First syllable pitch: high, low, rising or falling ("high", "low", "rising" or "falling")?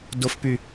high